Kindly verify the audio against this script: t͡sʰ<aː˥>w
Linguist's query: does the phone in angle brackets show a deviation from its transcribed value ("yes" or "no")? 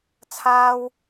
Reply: no